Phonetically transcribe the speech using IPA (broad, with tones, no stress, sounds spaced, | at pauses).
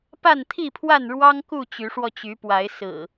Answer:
p a˥˨ n t̪ʰ i˥˨ pʰ w a˥˨ n ɻ w ɑ˦ ŋ k u˥˨ t͡ɕ y˨˦ ʂ w ɔ˧ t͡ɕ y˨˦ p w a˨˦ ɪ̯ s ɹ̩˨˩